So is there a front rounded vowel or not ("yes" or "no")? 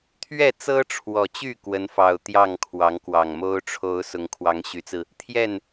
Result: yes